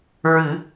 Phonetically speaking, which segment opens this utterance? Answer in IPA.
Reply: ɹ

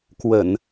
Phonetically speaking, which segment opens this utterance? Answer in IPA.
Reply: k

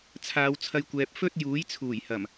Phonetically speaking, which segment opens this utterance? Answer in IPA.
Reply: t͡sʰ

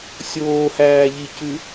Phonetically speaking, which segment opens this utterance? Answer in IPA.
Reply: sʲ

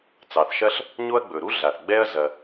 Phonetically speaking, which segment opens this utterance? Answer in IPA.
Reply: t͡s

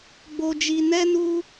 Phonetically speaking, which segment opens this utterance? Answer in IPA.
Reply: ɡ͡b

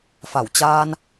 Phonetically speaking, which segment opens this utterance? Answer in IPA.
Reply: f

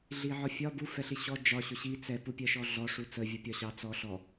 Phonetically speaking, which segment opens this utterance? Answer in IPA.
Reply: ɮ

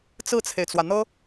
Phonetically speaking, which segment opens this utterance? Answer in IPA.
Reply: t͡s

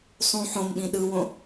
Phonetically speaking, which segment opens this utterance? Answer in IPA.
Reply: sˤ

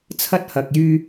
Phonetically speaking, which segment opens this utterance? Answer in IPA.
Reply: t͡sʰ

